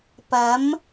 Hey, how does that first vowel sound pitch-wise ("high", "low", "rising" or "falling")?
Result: rising